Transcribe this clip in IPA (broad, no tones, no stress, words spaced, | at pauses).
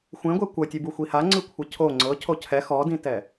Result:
xʷẽɡʷe kʷɤtʲɯbu xʷihaŋ͡ǀɯ kʷʰɯcʰo ŋ͡ǀɤ cʰocʰɛ xɔdĩtɛ